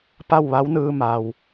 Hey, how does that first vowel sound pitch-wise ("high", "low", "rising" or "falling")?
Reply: falling